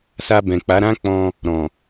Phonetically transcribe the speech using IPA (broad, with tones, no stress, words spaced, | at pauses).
sa˧bɛ̃˨k͡pa˨˦ ɾã˦k͡pɔ̃˧ | ɾɔ̃˨